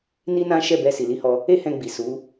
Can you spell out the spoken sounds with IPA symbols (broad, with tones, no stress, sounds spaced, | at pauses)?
n i˦ n ã˦ ʃ ɛ˦˨ b ɛ˧ s i˨ l i˨˦ h ɔ˧ | e˦ h ɛ̃˧ ɡ͡b i˨ s u˨˦